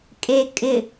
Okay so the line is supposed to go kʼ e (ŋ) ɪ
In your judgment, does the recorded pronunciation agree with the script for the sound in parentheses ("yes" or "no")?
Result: no